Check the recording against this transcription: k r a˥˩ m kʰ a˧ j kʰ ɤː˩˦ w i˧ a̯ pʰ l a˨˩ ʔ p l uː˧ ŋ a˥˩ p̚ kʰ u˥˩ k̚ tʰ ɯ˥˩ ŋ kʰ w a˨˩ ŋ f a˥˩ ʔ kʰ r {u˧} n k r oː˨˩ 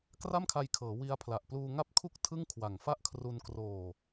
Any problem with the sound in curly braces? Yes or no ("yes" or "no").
no